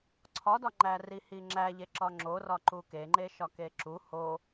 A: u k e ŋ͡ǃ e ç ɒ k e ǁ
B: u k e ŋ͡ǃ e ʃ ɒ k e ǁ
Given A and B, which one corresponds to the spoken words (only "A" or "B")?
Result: B